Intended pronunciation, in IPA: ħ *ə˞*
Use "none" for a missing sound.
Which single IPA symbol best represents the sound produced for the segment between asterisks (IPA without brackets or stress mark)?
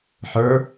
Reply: ə˞